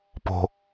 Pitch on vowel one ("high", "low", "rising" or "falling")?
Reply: low